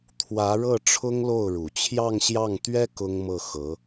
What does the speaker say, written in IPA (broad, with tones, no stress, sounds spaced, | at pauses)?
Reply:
t̪ʰ w ä˧˥ ɻ ɤ˥˩ ʈ͡ʂʰ ʊ˥ ŋ l o˥˩ ʊ̯ ɻ u˨˩ t͡ɕʰ j ɑ˥˧ ŋ ɕ j ɑ˥˩ ŋ t̪ ɥ ɛ˥ k ʊ˥ ŋ m ɤ˥˩ x ɤ˧˥